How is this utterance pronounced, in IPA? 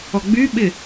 ɔɡ͡byɓɪ

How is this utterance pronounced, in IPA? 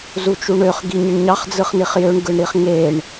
zut͡ʃuɳøχ ɡiɲiɳɲɑχ d͡zɯχniχjøɳ ɡɯɳɾiχŋeɳ

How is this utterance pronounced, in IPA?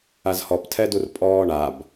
azhɔptʰɛdur pʼɔːɳab

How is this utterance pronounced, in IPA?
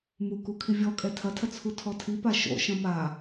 mukukʰi vʲɔkʼɛ tʰɐtʰɐ t͡sʰutʰɔtʰipa ʃo̰ ʃɐ̃ma

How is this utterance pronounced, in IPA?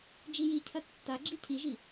d͡ʒijicʰɐ tːaɡ͡ǁi cʰiʒi

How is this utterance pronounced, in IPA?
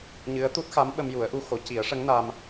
ɲɨ˧˥ə̯t̪u˦˥t̚xa˧˥m ɓə˧mju˨˩˦ə̯ʔu˧xo˨˩˦ ci˨˩˦ə̯ʂə˧˥ŋna˧m

